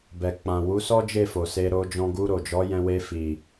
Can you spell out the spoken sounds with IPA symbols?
b ɛ˨ k͡p ã˨ w u˨˦ s ɔ˦ d͡ʒ e˦˨ f o˨ s e˧ ɾ o˧ d͡ʒ ɔ̃˧ ɡ u˧ ɾ o˨ d͡ʒ ɔ˨˦ j ɛ̃˧ w e˧ f i˨

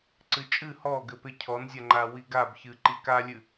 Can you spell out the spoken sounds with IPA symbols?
ǀ ɨ t͡ʃʼ ɨ h ɔ ɡ ɘ p e cʰ ɔ n zʲ a ŋ͡ǃ a w i ɡ a b ç ɨ ǃ i k a lʲ ɨ

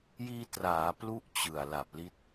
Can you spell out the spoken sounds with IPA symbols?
j iː˧ t r aː˩˦ p l u˦˥ ʔ t͡ɕ ɯ˨˩ a̯ l a˨˩ p̚ l i˦˥ t̚

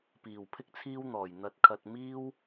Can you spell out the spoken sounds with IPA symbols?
p iː˨˩ w pʰ ɪ˥ k̚ t͡sʰ iː˥ w n̪ ɔː˨˩ j n̪ ɐ˧ t̚ kʰ ɐ˧ t̚ m iː˥ w

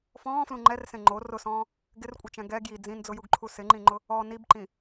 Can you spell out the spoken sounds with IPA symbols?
f ɔ̃ː f l ũ ŋ͡ǃ ɛ r s ẽ ŋ͡ǃ o r ʊ s ɔ̃ː | ɡ ɪ r kʷʼ ɪ t͡ʃ ɛ̃ ɡ ɛ ɡ j i d͡z ĩ n d͡z ʊ j u ɡ ǃʰ u s ɪ ŋ͡ǃ ĩ ŋ͡ǃ ʊ | ɔ n i b ǃ ĩ

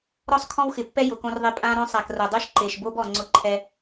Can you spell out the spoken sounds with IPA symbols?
ɾ ɔ˦ sˤ kʰ ɔ̃˦ w x ɪ˨ pː ɛ˦ j ʊ˨ k õ˦ r ðˤ e˦ pʼ ã˦ ɾ õ˦ sˤ a˨ k r o˨ dˤ u˦ ʃ ǃ e˨ ʃ b o˦ b ɔ˨ ŋ͡ǀ ʊ˦ ǃʰ ɛ˦

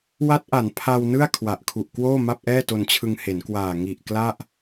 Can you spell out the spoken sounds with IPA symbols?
w a˦˥ t̚ ʔ a˩˦ n pʰ a˧ w n ɯ˥˩ a̯ kʰ w a˨˩ ʔ kʰ u˨˩ ʔ k w oː˥˩ m a˥˩ p̚ ʔ ɛː˥˩ t o˧ n t͡ɕʰ ɯ˧ ŋ h e˩˦ n k w aː˨˩ ŋ i˨˩ ʔ k l a˥˩ ʔ

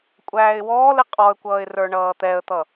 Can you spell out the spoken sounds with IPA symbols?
kʷʼ æː ɪ̯ w ɔː l ɪ qʼ ɔ ə̯ kʷ ʌː ɪ̯ r ə˞ ɳ ʌː t̪ ɛ ə̯ t̪ ʌ

